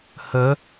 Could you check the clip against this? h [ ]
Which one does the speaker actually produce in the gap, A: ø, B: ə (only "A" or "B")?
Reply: B